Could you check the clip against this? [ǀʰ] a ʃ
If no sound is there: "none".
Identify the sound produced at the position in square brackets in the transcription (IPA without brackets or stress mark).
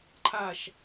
ǃʰ